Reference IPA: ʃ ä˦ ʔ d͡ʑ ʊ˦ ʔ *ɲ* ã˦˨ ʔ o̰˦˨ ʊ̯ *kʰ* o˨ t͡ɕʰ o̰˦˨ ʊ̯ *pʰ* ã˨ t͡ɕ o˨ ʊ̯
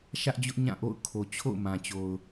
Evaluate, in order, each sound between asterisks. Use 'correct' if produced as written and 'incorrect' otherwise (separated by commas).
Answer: correct, correct, incorrect